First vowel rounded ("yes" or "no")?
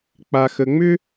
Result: no